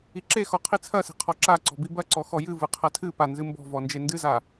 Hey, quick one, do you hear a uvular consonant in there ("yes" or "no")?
yes